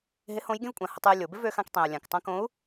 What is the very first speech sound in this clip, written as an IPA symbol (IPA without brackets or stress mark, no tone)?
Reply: ɦ